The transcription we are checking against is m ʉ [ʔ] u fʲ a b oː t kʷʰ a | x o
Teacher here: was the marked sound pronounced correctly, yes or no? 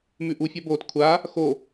yes